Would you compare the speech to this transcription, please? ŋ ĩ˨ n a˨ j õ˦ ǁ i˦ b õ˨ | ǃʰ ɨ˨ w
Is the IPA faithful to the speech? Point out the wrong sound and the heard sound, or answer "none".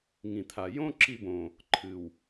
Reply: n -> t̪ʰ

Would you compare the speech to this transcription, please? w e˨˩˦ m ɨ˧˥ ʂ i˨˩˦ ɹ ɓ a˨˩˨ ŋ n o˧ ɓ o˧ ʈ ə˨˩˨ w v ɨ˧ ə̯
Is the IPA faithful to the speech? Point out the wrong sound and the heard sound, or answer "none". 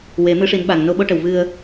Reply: ɹ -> n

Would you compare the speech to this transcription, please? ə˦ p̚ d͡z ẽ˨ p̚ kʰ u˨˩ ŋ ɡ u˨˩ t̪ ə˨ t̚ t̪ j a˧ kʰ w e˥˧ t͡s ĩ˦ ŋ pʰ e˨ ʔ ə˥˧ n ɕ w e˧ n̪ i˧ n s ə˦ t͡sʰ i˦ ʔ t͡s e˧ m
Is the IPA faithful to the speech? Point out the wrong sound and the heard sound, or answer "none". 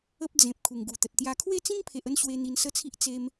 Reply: none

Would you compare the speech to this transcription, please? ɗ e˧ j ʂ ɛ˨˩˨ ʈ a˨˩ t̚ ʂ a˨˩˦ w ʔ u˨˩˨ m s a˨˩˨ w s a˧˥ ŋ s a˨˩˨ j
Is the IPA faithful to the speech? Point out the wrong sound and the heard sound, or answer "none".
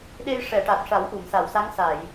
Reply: none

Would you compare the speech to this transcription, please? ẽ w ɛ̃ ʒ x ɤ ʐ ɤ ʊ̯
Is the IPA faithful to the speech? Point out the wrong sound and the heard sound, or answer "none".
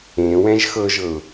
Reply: ʐ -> ʒ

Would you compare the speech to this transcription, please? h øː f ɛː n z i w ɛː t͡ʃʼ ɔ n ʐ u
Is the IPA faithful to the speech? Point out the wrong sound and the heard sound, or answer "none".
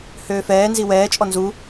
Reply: ʐ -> z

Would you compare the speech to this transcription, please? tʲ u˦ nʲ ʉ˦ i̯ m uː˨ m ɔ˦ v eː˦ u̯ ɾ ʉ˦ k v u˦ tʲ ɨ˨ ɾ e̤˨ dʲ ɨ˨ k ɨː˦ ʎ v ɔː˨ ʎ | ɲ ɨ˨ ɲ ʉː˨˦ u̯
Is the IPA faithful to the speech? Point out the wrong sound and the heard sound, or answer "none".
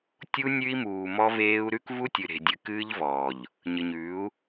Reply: none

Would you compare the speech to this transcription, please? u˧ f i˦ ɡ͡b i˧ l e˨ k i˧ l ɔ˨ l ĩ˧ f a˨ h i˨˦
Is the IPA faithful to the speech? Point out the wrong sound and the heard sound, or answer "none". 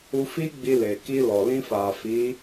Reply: h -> f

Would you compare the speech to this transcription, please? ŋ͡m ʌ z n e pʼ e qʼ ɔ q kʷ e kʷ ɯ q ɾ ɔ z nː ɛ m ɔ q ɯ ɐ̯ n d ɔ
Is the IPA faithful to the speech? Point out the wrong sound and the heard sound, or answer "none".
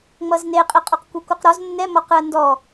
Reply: pʼ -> qʼ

